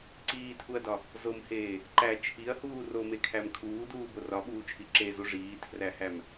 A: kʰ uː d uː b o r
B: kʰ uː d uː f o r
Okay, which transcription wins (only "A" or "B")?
A